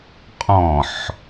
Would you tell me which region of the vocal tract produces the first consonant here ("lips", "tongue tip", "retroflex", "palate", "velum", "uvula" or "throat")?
uvula